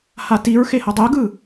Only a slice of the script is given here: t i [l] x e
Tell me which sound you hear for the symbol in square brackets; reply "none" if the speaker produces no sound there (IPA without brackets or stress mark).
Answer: ɹ